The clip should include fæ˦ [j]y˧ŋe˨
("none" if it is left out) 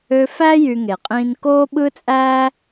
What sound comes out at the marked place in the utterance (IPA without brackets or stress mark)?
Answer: j